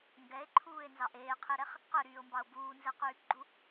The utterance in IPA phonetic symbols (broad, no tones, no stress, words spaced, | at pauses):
ŋɡɛe̯ǃʰuːe̯nzɑʔ eːqʰeɾɛχ | qøɾyːo̯mbɑo̯ buːnzɛqyːpɡ͡ǃu